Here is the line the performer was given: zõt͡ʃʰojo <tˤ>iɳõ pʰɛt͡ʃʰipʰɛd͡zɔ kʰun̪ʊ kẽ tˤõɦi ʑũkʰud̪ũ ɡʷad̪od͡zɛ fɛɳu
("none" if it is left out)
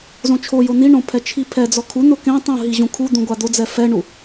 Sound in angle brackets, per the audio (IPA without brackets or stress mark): n̪